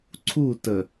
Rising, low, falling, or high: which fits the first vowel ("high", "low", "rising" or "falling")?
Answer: falling